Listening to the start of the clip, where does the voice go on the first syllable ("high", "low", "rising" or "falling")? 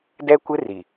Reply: high